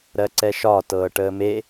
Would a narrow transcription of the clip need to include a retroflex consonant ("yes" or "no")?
yes